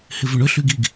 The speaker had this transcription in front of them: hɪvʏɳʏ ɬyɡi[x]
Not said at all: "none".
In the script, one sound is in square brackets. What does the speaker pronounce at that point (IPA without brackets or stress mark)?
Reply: ɡ